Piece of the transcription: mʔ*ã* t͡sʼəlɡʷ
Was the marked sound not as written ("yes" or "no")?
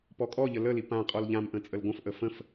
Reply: yes